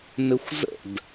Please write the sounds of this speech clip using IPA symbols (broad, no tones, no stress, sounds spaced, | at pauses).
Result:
n ɘ xʷ z ə̰ d